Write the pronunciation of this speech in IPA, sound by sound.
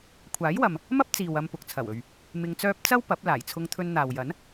kʷʰ aː˨˥ j w ɐ˨ m | m ɐ˥ p̚ t͡s iː˨ w ɐ˧ m p ʊ˨ k̚ t͡sʰ ɐ˨˩ w ɵ˨ ɥ | m ɪ˧ ŋ t͡s œː˥ p̚ t͡s ɐ˥ w p ɐ˨˥ p̚ l aː˨˩ j t͡sʰ ʊ˧ ŋ t̪ʰ ɵ˧ n n̪ aː˨ w j ɐ˨˥ n

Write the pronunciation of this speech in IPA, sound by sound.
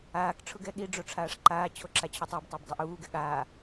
aː k ʈ͡ʂʰ ʊ ɡ ɛ ɠ i ɖ͡ʐ o ʈ͡ʂʰ aː ʂ ǃ aː t͡ɕʰ o ǁ a t͡ɕʰ ʊ tˤ o b tˤ a b dˤ ʊ ʔ uː ɡ ɛ ɠ aː

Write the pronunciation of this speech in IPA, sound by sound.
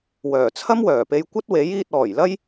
w œː˨˩ t͡sʰ ɐ˥ m w œː˨˩ p e˧ j kʷ ɐ˥ t̚ w e˨˥ j iː˧ t̚ ɔː˨˩ j l ɐ˥ j

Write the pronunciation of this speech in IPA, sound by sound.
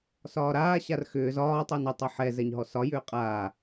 s ɒː ɾ aː ɕ a r x ʏː z ɒː tˤ ɤ n ʏ tˤ ɤ ħ ɛ z ɛ ɲ ɦ ɔ s ɒ j ʏː qʼ aː

